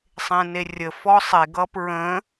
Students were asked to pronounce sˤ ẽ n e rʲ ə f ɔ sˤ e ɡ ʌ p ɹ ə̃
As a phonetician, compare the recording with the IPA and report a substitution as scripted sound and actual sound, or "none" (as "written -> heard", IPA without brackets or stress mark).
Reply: none